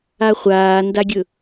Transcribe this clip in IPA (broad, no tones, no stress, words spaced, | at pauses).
aχʷaːndaɡʲɵ